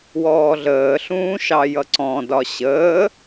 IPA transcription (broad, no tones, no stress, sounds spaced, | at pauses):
w ɔː ɮ əː ɬ ũː ʃ ɑ j ʌ ǀ ɔ̃ d ɒ ɕ əː